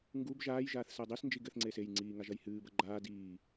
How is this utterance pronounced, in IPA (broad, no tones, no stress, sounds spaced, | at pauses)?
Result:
ŋ ɡ u b ʒ aː j ʒ aː θ s ɛ dˤ i s n d͡ʒ i ɡ ɘ θ ŋ͡ǀ eː s e j ŋ͡ǀ iː ŋ a ʒ ɐ j h ɨː b ɐ ɡ͡ǃ aː d iː